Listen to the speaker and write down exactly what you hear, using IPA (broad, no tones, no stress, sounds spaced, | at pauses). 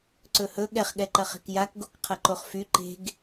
ǀ ɵ h ɵ ɠ ɛ χ ɠ ɛ ǃ ɐ χ e̤ k j a k ɡ o k qʰ ɐ ǃ o χ f y ǃ e̤ ɡ